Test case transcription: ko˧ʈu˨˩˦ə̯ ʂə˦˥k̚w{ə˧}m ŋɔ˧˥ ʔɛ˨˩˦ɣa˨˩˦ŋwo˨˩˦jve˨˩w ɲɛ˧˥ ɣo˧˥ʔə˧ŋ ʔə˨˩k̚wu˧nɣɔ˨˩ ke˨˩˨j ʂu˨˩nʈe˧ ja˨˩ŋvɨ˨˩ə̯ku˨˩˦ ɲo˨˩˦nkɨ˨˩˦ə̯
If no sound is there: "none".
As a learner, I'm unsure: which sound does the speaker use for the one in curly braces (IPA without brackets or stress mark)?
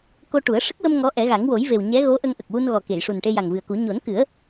ə˧